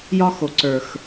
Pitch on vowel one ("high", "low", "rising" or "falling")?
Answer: high